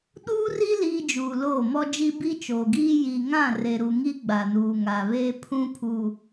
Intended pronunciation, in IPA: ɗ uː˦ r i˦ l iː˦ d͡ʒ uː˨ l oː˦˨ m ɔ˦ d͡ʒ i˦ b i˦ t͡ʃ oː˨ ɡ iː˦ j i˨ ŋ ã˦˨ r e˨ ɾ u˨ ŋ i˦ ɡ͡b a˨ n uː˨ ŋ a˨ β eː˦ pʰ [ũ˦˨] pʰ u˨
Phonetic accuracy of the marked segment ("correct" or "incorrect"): incorrect